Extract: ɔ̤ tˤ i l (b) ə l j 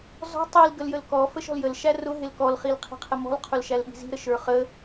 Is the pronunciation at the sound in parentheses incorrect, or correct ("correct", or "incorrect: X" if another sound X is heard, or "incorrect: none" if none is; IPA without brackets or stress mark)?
incorrect: ɡ